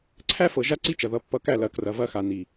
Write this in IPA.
ǀʰ æ˦ f ɤ˨ ʒ a˦ ǀ i˦ t͡ʃ ɐ˨ ð ʌ˨˦ pː ʌ˧ k æ˦˨ l ɐ˨˦ k r ɐ˨ v ɐ˧ x a˨ n i˨

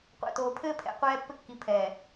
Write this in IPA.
qʷ æ̰˨ t oː˨ pʰ ɘː˦ pʰ ɛ̰˨ qʷ ɛː˦ pː ɘ˦ kː i˨ pʰ ɛː˨

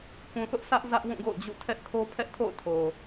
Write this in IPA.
k ũ˨ θ ʊ˦ ʔ sʰ ä˦ ʔ z ä˦ ʔ w ũ˦˨ ɡ o̰˦˨ ʊ̯ d͡ʑ ṵ˦˨ tʰ ɛ˦ ʔ kʰ o˦ pʰ ɛ˦ ʔ kʰ o̰˦˨ ʊ̯ tʰ o˨

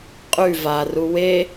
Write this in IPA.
qʼ ʉ v a r u w e

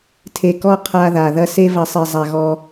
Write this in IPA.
tʰ e˨ k ɔ˦˨ qʰ a˦ ð a˨ ð ɐ˦ s e˦ v ɐ˨˦ sˤ e˨ zˤ a˨ ɣ ɔ˦

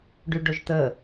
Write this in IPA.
ɖ y ɖ o ʒ t̪ ə

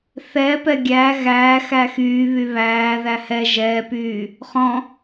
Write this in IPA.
θ ɛ p ɛ ɡʲ æ ɣ æː x æ x yː β y β æː ð æ h ɛ ʒ ɛː p yː | χ ɔ̃

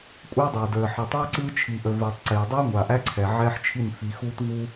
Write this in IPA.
kʷʼ æ˦ dˤ æ˨ d əː˨ ħ ə˨ tˤ a˦ ǀ ɯː˦ t͡ʃʰ iː˨ ʔ ə˨ v əː˨ tˤ ǀ eː˨ dˤ ɯː˦ ŋʷ a˨ ʔ æ˦ ǀʰ ɛ˨ ʕ ɛː˦ ħ t͡ʃʰ i˦˨ n f i˨ x uː˦ t v u˦

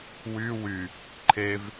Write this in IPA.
w y w y | ǃʰ e v

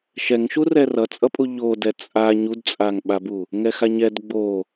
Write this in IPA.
ʃ ɛ ŋ ʃ u r ɛ r ʌ t͡sʼ ʌ pʼ u ʎ o d ɛ t͡sʼ a ɲ u d t͡sʼ a ŋ ɓ a b u | ŋ ɛ x a ɲ ɛ d ɡ͡b o

